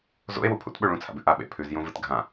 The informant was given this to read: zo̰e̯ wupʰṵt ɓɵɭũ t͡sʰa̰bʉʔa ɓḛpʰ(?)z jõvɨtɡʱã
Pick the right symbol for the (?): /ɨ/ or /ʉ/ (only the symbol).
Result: ʉ